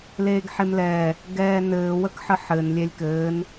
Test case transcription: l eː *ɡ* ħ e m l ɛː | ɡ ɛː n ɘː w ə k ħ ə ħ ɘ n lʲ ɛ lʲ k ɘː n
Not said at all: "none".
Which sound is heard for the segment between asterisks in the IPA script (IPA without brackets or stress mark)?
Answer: ɡ